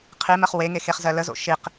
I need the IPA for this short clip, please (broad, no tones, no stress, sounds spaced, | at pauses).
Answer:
qʰ i m ɜ χ w e ŋ e x e χ z ɜ l ə z o̰ ʃ i q